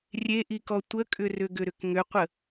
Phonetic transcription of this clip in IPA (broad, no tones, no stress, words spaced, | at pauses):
rʲeʔikɔ tʷəkʼʏrʏ ɡʏɾʏkŋʏqʷə